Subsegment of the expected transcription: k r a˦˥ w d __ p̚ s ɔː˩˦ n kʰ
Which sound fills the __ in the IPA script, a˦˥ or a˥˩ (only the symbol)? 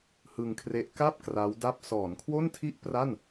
a˥˩